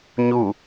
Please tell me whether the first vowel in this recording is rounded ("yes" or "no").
yes